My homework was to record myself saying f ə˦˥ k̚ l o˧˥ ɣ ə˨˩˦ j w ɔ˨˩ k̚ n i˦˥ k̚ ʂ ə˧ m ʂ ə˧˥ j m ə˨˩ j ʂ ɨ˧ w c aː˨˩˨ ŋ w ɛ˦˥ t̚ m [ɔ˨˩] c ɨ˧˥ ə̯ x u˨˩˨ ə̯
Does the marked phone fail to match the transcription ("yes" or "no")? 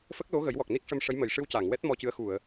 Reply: yes